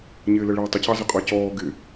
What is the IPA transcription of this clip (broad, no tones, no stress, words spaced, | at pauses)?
ɲɪːləɭɪːtˤə cɑzəqʼɑcɔː ɡɪ